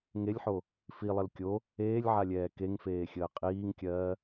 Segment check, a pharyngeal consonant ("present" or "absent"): present